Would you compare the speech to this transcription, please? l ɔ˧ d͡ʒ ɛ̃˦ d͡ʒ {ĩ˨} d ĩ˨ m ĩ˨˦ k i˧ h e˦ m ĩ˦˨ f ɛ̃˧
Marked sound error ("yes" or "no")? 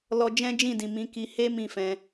yes